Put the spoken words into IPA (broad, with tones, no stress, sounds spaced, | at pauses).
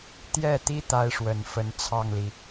t̪ j ɛ˥˩ t̪ i˥ t̪ a˥ ɪ̯ ʂ w ə˨˩ n f ə˧˥ n t͡sʰ ɑ˥˩ ŋ l i˩